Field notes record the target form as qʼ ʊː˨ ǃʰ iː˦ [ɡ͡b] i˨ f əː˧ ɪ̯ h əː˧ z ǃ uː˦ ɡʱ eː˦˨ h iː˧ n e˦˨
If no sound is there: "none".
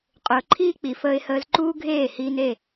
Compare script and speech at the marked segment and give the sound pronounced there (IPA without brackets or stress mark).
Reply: k͡p